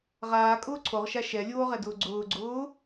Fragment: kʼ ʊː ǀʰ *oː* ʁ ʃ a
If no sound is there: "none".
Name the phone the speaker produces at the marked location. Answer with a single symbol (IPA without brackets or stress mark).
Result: o